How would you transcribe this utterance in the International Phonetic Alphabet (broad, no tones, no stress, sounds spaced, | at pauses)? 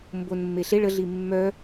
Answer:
m b o n mː e ɬ e ɭ ə ɮ i mː œ